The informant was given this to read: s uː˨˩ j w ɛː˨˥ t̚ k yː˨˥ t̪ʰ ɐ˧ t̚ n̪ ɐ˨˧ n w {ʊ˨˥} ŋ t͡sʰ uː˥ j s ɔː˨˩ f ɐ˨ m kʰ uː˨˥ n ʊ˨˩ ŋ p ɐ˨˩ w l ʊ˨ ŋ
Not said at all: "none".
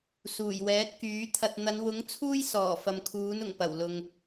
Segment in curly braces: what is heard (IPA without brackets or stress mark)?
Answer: ʊ˨˥